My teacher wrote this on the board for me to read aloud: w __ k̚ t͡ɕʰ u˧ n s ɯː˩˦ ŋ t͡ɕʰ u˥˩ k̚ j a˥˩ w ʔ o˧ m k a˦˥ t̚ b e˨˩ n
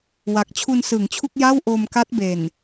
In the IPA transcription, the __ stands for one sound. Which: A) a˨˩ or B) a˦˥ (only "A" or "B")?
A